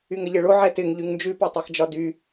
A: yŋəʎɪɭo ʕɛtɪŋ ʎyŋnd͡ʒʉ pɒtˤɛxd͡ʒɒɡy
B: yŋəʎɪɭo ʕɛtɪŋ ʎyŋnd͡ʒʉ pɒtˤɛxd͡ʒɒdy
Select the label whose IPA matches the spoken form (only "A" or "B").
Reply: B